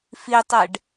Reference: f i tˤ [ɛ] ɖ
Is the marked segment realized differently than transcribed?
no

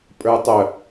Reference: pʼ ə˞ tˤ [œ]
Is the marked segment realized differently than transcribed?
no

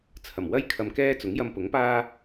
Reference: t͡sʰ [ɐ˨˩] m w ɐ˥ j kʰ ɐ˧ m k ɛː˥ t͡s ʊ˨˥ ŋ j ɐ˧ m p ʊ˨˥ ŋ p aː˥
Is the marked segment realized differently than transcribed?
no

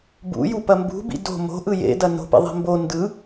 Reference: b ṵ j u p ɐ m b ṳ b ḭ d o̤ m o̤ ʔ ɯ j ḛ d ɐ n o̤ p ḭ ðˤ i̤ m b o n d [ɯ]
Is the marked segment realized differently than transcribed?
no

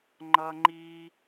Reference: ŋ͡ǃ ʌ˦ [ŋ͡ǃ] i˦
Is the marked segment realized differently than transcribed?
no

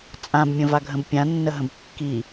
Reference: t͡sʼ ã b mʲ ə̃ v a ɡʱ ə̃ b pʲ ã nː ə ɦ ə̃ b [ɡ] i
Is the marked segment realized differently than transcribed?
yes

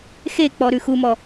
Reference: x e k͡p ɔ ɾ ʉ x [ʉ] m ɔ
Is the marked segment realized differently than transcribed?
yes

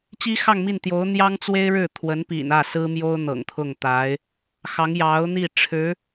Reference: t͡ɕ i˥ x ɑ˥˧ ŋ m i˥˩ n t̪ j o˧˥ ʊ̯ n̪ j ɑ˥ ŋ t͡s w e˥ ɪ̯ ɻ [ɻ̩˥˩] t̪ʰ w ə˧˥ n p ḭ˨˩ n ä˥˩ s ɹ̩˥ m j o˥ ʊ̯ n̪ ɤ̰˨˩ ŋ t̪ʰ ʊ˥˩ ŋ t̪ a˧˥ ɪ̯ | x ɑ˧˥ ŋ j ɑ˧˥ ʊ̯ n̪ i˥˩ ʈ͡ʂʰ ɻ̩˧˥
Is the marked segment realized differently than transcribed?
no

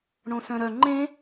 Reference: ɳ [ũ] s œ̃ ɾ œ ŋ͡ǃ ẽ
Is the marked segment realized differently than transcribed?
yes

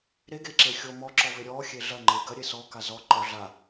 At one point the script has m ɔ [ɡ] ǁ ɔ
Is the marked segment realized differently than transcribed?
yes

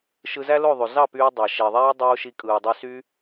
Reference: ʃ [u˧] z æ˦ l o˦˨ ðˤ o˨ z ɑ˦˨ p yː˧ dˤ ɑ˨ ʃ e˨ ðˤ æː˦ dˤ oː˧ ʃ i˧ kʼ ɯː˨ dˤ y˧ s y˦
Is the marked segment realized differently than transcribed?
yes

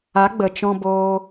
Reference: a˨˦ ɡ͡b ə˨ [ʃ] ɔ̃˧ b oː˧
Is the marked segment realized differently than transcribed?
yes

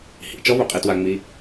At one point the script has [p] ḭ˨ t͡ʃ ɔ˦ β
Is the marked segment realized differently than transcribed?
yes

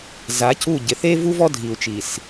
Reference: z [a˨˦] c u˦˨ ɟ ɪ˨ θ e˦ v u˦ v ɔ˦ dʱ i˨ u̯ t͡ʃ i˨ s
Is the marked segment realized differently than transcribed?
no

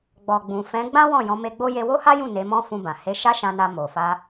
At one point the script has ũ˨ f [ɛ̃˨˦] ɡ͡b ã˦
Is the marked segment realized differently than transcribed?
no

